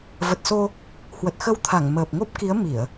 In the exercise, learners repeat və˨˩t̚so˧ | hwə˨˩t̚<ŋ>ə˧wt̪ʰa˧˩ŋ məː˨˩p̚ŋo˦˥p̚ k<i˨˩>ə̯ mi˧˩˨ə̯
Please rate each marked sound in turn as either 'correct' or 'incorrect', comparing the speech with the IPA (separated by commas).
incorrect, incorrect